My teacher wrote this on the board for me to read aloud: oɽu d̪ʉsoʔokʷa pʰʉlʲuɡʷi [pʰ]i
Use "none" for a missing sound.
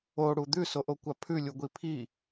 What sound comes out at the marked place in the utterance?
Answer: pʰ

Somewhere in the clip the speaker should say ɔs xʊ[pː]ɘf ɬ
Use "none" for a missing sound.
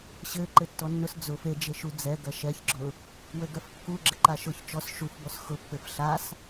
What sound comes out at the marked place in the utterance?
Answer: pː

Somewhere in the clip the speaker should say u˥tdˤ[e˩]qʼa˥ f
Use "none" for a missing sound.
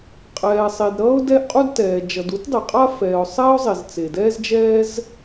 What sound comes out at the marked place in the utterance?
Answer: e˩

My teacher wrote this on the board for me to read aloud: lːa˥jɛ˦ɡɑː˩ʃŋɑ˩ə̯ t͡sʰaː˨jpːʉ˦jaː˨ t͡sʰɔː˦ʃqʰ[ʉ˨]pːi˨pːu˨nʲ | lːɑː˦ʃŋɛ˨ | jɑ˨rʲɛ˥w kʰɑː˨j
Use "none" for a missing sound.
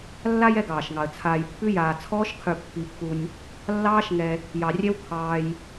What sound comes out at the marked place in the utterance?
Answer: ʉ˨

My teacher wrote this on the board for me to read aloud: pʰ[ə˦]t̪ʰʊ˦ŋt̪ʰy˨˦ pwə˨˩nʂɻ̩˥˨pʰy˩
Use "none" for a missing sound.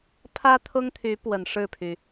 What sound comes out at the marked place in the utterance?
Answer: ä˦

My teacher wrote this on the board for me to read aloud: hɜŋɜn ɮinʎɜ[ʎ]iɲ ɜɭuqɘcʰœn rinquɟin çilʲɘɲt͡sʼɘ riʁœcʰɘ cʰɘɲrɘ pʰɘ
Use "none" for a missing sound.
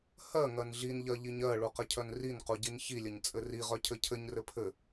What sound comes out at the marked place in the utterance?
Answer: ʎ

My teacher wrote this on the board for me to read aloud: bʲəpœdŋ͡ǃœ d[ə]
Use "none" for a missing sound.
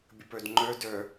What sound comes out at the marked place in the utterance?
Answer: œ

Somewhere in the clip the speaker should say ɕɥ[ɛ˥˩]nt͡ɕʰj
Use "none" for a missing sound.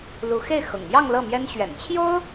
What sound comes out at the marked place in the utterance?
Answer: ɛ̰˨˩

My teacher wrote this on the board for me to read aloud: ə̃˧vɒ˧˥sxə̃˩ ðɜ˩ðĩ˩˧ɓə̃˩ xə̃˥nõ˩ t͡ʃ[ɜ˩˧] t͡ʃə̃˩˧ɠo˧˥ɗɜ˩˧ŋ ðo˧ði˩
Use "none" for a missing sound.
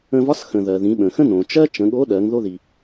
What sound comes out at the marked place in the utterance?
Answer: ɜ˥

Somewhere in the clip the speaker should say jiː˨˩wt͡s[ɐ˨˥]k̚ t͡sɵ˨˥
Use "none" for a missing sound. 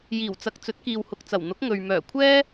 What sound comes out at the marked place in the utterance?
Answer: ɐ˨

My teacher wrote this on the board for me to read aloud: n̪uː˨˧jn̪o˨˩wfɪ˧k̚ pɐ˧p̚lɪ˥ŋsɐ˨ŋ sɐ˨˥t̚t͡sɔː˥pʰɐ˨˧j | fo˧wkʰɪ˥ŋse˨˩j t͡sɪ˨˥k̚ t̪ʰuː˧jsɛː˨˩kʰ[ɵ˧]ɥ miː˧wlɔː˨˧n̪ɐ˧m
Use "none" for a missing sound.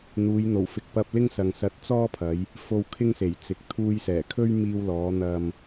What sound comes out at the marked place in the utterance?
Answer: ɵ˥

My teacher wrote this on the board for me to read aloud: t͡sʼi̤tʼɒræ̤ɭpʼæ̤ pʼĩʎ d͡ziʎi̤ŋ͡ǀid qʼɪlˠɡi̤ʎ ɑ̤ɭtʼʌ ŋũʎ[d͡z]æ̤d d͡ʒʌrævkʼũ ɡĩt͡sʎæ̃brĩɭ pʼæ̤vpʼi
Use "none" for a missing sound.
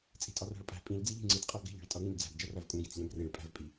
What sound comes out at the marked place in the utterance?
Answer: d͡z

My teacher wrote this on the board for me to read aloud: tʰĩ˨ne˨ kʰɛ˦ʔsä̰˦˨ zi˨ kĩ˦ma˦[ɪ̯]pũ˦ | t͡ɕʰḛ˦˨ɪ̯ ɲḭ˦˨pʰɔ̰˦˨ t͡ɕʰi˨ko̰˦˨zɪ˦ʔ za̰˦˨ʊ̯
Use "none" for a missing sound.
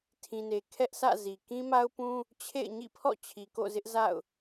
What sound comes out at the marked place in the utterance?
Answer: ʊ̯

